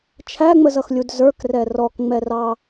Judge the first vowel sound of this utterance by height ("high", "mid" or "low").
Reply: low